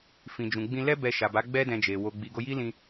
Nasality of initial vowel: nasal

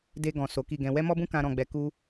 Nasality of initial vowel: oral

